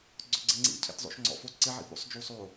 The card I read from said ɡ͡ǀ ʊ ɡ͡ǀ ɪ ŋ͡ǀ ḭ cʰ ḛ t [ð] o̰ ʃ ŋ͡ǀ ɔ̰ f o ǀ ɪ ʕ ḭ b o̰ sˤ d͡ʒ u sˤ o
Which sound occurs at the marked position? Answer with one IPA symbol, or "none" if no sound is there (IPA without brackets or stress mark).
zˤ